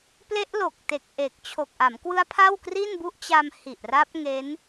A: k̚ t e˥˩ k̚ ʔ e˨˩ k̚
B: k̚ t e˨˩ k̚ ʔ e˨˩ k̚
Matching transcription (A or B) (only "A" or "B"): B